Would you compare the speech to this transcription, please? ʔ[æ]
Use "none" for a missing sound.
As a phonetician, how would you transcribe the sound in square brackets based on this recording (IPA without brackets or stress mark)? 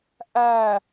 æ